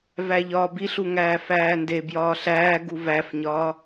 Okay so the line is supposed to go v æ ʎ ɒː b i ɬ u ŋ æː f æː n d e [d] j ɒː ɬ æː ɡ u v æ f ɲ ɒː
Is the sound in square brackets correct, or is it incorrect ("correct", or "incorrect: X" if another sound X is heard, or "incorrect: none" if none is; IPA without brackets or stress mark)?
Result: incorrect: b